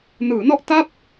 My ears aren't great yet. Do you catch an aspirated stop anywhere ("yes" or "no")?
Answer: no